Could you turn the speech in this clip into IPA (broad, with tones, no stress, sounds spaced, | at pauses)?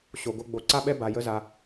ɕ o˨ ɡ o˧ ɡ͡b o˨˦ ǀ a˦ ɓ ɛ˦ b a˧ j ə˦ z a˧